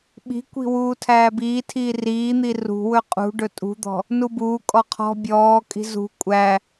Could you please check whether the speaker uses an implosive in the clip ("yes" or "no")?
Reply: yes